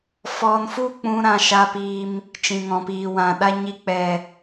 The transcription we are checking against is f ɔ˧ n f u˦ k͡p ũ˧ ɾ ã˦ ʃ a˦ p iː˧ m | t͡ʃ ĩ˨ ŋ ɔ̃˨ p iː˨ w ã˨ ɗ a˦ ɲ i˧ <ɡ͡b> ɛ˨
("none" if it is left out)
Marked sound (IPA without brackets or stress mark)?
k͡p